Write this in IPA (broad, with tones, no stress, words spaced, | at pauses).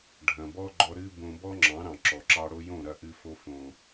ɖʱɐ̃˨bɔ˦ɡ͡ǃɔ˧ ɾɨ˧ bõ˧bɔ˦ŋ͡ǁɑ̃˨˦ ɾɑ̃˨ǁɔ˨ǁɑ˧ɽo˦ jõ˦˨ɾɐ˦˨ʔɨ˧fo˧ fõ˨